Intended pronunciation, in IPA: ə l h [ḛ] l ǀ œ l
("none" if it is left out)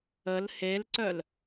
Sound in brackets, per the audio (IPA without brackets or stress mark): e